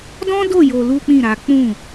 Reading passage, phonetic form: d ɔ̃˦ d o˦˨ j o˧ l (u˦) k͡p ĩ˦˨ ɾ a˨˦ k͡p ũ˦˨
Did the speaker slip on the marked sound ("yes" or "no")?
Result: no